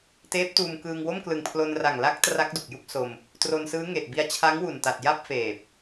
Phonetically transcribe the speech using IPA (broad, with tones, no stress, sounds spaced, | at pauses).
t eː˦˥ p̚ t uː˧ m k ɯː˧ ŋ w o˥˩ m k l ɯ˨˩ ŋ pʰ l o˧ n r a˨˩ ŋ l a˦˥ k̚ t r a˦˥ k̚ d u˨˩ k̚ j u˥˩ k̚ s o˧ m | t r o˧ n s ɯː˦˥ ŋ e˨˩ ʔ b i˧ a̯ t͡ɕʰ a˦˥ ŋ w u˨˩ n t a˨˩ t̚ j a˥˩ p̚ f eː˨˩ p̚